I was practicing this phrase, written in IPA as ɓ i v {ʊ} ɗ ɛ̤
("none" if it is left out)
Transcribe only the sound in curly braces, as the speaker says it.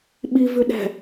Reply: ʉ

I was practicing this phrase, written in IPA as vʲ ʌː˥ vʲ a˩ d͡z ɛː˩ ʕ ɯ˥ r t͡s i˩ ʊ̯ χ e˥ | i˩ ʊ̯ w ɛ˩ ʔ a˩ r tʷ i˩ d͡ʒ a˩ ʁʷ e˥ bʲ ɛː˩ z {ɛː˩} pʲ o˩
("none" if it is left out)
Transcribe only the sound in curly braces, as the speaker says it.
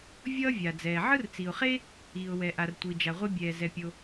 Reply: ɛ˩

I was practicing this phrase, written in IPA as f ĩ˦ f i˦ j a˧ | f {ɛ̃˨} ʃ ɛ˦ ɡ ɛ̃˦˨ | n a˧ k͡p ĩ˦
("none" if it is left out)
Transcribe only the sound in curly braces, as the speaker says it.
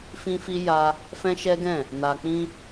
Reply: ɛ̃˦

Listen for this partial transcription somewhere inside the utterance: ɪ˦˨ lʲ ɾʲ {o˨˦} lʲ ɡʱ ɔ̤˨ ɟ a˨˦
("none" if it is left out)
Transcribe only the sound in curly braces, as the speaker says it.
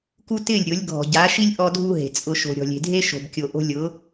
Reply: o˨˦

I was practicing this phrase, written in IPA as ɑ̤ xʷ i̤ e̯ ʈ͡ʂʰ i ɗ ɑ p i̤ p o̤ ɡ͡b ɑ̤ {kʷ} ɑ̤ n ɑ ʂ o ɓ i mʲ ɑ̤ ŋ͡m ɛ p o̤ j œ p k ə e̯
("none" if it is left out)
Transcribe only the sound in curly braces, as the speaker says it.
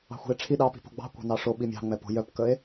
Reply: kʷ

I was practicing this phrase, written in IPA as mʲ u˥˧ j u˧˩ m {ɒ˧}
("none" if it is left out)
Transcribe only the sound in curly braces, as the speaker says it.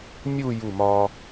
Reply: ɒ˧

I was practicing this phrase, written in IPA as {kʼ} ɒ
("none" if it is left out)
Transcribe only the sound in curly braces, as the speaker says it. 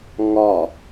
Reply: ŋ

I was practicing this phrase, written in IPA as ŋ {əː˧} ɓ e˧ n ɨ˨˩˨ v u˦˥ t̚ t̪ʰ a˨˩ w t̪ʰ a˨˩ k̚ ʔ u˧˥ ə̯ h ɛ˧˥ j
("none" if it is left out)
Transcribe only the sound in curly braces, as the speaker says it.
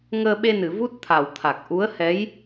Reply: əː˧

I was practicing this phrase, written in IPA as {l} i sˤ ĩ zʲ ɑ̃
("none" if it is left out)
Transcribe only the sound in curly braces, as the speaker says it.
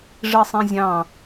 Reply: ʐ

